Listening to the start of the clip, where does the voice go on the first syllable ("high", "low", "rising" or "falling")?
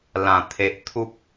low